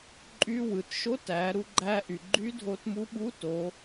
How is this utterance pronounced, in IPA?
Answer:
ǃʼy˧˥ wɯ˩˧tʃo˧˥tæ˩˧ ɾu˧ɡ͡ǃæ˧ʔy˩ ɡ͡ǃy˧˥dʱo˧tmu˧˥ɓu˧˥ to˩˧

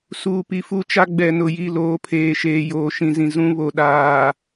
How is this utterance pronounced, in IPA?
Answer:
suː˨pi˨fu˦t͡ʃa˦ ɡ͡bɛ˨nʊ˨ ji˦˨loː˨˦pʰeː˨ ʃeː˨joː˨ʃĩ˨zĩ˨ zũ˦ βo˨ ɗaː˨

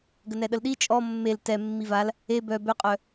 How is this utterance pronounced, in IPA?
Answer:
ɡənɛɗəlɗi t͡ʃʼɔ mːel tɛ mːival | e bœ bøqʼœ

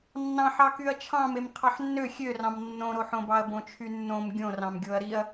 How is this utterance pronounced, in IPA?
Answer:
nːɑ̃ħɑkyɐ̯ t͡ʃʰɑ̃mem qʰɑħnːø xʲørɑ̃m nːõɾoħõbɑɐ̯ bõt͡ʃʰynːõm ɡʲõ rɑ̃mɡʲoɐ̯ɾiɐ̯

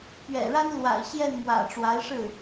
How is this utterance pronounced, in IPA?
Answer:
pɥɛ̰˨˩ɻa˥n lwa̰˨˩ɪ̯ ɕjɛ˥˩nmwä̰˨˩ ʈ͡ʂwa˧˥ɪ̯ʂɻ̩˥˩

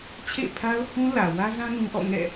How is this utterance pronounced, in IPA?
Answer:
t͡ɕʰḛ˦˨ɪ̯pʰa˦ʊ̯hũ˦ lä˨ wä˦zã˦ nũ˦ ʔɔ̰˦˨ ŋɛ̰˦˨

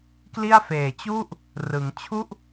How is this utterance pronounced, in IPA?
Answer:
kli˥˩a̯ feː˨˩t͡ɕu˥˩ʔ | rɯ˩˦ŋt͡ɕʰu˥˩ʔ

